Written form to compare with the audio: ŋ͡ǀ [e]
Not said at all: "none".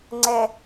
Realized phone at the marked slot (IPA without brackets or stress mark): ɛ